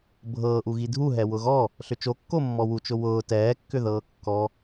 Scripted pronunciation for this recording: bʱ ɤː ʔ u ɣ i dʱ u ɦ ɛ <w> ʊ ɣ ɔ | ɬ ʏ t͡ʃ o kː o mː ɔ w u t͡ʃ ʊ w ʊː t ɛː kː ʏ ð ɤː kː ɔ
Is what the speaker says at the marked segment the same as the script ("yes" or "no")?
yes